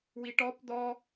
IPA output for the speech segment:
w i ʈ ɔ p d̪ ɔ

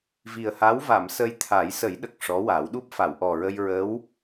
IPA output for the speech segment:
v i˨˩ ə̯ h a˧˥ w v a˨˩˨ m s ə˧ j t̪ʰ a˨˩˦ j s ə˨˩˦ j ɗ ə˨˩ k̚ ʂ ɔ˧˥ w a˨˩˦ w ɗ u˦˥ p̚ f a˨˩˨ w ʔ ɔ˨˩ ɹ ə˧ j ɹ ə˧˥ w

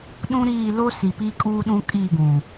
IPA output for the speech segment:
ɗ ũ˦ ɾ iː˦˨ l o˦ s i˨ p i˦ kʼ uː˦ ɗ ũ˦ kʼ iː˦˨ ɡ ũ˨

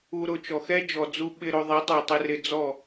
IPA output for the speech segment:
u˧ ɾ ʊ˧ t͡ʃ ɔ˨ x ɛ˦ d͡ʒ ɔ˨ d͡z u˧ ɓ ɪ˧ ɾ o˧ ðˤ i˨˦ tˤ u˨ tˤ ɪ˧ r ɪ˧ d͡z ɔ˦˨

